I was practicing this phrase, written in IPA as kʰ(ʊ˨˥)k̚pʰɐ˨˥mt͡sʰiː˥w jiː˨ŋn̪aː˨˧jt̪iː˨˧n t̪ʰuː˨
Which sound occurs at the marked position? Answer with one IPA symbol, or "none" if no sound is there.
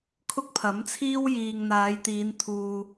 ʊ˥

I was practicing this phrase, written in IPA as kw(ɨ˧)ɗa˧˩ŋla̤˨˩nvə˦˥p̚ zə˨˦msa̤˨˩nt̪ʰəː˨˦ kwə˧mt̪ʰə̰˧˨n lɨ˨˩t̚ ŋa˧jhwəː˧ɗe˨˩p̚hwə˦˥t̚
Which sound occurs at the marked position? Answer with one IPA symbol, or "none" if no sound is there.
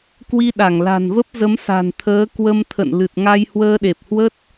i˧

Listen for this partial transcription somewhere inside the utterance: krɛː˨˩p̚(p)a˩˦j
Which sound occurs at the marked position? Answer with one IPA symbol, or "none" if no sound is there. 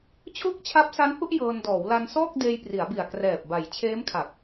b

